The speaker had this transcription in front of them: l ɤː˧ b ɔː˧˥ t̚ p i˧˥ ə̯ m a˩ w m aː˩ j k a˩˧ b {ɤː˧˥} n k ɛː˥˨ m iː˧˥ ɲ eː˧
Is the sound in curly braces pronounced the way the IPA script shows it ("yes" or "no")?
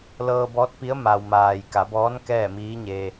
no